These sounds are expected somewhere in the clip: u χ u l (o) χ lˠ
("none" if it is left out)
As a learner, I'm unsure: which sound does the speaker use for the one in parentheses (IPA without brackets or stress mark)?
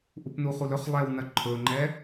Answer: ɵ